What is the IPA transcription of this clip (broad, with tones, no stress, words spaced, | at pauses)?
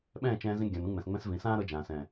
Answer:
ɓɛ̃ː˦˨t͡ʃɛ̃ː˧zĩ˧ ɡʲã˨nũ˧ŋ͡mɛ̃˨sŋ͡mɛ̃˧s vĩ˨sãː˦ɾɤ˧d͡ʒãː˨ sɛ̃˨